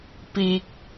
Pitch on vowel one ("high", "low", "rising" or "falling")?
low